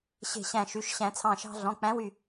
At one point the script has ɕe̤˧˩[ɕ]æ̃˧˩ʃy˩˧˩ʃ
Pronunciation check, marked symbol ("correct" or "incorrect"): correct